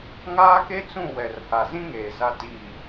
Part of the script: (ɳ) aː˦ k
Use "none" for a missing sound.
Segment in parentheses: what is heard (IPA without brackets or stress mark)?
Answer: ŋ